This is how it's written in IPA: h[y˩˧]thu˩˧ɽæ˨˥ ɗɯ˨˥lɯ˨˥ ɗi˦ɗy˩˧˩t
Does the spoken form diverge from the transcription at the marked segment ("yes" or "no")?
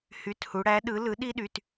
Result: yes